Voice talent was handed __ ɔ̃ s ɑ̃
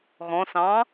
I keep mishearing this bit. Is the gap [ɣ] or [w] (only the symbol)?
ɣ